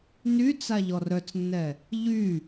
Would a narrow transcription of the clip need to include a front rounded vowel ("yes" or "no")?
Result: yes